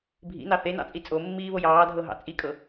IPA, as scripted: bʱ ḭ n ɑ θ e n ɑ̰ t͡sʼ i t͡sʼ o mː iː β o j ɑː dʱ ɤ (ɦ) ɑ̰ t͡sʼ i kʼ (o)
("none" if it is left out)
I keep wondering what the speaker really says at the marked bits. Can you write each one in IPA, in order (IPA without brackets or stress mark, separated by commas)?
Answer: ɦ, ɤ